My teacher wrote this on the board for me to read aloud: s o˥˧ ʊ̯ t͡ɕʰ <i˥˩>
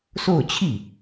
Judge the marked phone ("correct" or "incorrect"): correct